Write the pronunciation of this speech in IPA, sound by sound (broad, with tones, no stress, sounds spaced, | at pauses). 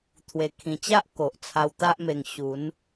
t̪ʰ w e˨˩ kʰ ĩ˨˩ t͡ɕ a˦ ʔ k o˨ ʔ t͡sʰ a˧ w t̪ a˦ ʔ m e˧ ŋ ɕ u˨˦ n